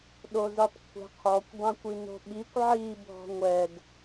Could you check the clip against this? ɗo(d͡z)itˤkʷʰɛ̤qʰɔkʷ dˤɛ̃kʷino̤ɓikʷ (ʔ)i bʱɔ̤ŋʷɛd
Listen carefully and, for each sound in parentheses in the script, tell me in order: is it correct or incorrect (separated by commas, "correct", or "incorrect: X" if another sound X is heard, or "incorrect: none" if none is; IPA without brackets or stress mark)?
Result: incorrect: z, incorrect: ʕ